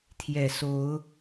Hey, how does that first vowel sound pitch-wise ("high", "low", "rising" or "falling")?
low